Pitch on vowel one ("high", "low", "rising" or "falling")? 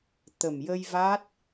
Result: low